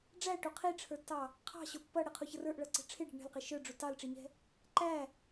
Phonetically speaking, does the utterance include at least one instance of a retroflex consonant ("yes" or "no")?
yes